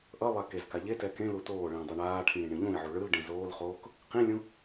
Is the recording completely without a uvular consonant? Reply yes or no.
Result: no